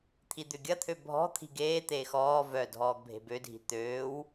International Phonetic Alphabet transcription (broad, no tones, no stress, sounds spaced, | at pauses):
t̪ʰ i d̪ ʏ ɡʲ ɐ t̪ʰ ø bʱ ɔ̤ t̪ʰ i̤ ɡ eː t̪ eː x ɔː v œ dʱ ɔː ɡ bʱ e̤ b ø dʱ i̤ t̪ øː w